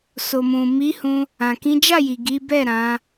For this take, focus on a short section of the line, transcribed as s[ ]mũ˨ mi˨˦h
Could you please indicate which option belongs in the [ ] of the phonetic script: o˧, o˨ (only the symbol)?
o˨